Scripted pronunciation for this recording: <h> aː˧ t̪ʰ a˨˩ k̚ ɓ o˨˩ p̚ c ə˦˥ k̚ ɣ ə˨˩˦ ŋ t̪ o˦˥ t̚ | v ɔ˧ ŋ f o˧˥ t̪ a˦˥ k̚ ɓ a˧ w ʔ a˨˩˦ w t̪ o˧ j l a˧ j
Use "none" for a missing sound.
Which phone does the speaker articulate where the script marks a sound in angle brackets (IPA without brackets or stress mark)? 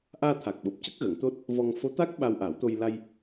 ʔ